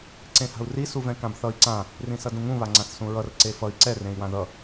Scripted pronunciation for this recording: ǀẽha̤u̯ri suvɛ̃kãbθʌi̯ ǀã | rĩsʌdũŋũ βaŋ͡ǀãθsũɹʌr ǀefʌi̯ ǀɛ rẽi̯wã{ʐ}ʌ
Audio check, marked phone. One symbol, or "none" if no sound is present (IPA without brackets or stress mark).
ð